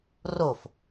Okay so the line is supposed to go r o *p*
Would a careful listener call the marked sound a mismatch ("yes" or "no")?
yes